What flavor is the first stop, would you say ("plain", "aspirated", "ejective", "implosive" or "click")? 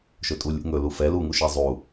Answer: ejective